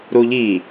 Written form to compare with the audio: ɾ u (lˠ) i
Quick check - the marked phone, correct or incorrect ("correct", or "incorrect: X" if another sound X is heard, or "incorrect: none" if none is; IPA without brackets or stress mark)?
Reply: incorrect: ʎ